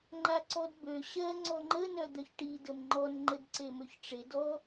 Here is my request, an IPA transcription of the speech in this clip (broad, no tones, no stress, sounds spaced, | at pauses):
ŋ͡ǃ a ǀ ɔ d b ø ɕ ɜ ŋ͡ǀ ɔ ŋ͡ǃ ə n œ d̪ œ ç ʈ i d ə m ŋ͡ǃ ɔ n ŋ͡ǃ ə d ǀ e m ø ç ʈ͡ʂ e d ɔ